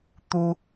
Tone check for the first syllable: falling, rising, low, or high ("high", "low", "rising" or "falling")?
high